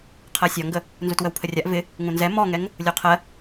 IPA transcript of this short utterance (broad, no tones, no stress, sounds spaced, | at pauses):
qʰ ɜ sʲ ɒ ŋ ɡ ə | n z u t w ə w pʰ ə rʲ a ʔ v ɪ | ŋ ũ n z ɛ m ɔ ŋ ɛ ŋ | lʲ o qʰ ɜ